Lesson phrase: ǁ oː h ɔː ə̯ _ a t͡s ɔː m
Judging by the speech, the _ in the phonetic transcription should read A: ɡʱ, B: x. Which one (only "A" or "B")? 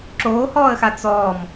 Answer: B